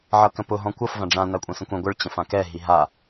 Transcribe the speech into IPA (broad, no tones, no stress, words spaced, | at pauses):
ʕʌkə̃pʊ ɦɔ̃kʷʌf vãɖ͡ʐã nakʷʼɛ̃sə̃kʷɛ̃ ɡʷəɭ t͡ɕə̃fãkɛ ɦiɦa